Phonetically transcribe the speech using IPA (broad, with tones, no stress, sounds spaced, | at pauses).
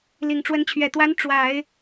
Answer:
l i˨˩ ŋ ʈ͡ʂ w ə˧˥ n t͡ɕʰ ɥ ɛ˨˩ t̪ w a˧˥ n ʈ͡ʂ w a˨˩˦ ɪ̯